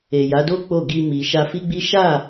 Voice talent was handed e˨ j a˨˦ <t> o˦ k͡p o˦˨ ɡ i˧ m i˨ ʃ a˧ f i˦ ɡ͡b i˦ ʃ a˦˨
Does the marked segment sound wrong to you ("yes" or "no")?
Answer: yes